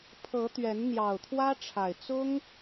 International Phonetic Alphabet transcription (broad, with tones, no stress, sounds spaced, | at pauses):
pʰ ɤ˨˦ t̪ ɥ ɛ˨˦ n n̪ j ɑ˨˩ ʊ̯ t̪ʰ w ä˦ ʈ͡ʂʰ a˨˩ ɪ̯ t͡s ʊ˦ ŋ